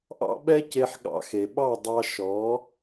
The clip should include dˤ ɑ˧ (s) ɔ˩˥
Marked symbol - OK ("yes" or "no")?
no